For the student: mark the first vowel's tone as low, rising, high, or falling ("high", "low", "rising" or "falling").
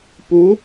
rising